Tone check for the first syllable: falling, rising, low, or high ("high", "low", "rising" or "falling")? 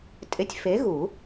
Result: rising